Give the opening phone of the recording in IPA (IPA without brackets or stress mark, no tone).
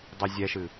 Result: dˤ